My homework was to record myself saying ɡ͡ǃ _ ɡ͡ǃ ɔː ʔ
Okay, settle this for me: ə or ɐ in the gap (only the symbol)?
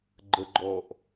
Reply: ə